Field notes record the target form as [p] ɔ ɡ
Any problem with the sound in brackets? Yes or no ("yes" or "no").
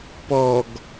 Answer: no